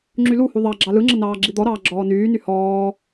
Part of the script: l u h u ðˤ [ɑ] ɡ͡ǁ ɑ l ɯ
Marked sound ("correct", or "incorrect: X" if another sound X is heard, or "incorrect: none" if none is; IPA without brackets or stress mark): correct